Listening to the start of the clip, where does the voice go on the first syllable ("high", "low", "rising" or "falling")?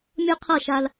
high